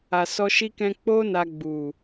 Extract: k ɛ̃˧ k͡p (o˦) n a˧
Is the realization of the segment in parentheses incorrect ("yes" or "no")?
no